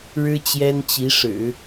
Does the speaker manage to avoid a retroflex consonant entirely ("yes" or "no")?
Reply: no